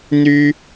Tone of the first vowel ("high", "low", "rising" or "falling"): high